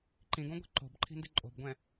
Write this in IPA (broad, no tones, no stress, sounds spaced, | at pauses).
ǃ ĩ ɡ õ ɡʷ ɛ̤ ǃ o̤ b ǃʰ i̤ n d ɪ ǃʼ o̤ b ɡʷ ɛ̃